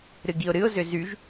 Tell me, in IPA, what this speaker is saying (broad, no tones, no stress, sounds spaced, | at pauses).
ɾ ɨ ɡ i ʊ̯ ɾ ɨ ʊ̯ z ʏ z y ʒ